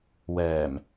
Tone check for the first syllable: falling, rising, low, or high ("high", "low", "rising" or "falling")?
low